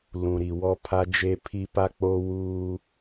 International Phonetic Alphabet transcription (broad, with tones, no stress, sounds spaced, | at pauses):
l ũ˨ ɾ i˨ w ɔ˦ pʰ a˦ d͡ʒ e˦ pʰ i˦ p a˦ k͡p o˦ w uː˦